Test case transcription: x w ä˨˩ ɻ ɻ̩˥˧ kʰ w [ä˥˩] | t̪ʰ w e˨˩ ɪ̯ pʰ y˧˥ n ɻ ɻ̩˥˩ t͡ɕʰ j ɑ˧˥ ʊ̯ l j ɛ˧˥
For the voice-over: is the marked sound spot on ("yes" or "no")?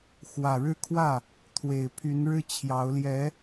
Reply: yes